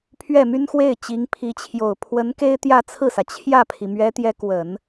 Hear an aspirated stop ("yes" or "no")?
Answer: yes